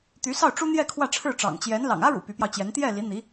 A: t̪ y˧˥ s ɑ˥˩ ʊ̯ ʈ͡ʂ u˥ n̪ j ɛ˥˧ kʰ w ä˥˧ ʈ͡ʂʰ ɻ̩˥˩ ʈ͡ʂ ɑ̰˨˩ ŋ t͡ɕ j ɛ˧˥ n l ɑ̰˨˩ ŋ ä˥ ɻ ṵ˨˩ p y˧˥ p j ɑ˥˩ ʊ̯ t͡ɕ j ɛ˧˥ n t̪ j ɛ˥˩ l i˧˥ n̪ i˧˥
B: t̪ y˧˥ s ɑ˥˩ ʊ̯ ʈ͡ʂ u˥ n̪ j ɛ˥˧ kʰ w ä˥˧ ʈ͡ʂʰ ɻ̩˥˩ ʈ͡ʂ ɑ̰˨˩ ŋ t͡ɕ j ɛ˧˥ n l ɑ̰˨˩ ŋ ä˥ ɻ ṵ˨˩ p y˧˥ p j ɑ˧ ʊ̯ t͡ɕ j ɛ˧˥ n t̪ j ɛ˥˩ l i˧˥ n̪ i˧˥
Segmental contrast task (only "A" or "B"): B